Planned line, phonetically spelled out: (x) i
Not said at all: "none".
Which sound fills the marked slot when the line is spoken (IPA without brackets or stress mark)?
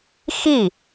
x